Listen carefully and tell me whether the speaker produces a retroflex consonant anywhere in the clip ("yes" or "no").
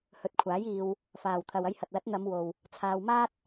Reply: no